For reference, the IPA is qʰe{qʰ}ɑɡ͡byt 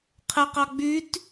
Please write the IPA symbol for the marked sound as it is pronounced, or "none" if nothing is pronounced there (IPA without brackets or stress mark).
q